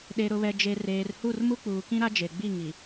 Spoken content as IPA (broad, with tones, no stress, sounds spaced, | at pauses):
ɗ e˨ ɾ ʊ˨ β ɛ˨ d͡ʒ e˨ r eː˨ r h u˦˨ r m u˦ k͡p uː˨ k ĩ˦ ɾ a˦ d͡ʒ e˨ ɡ͡b i˦˨ ŋ i˨